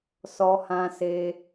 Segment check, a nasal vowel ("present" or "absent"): present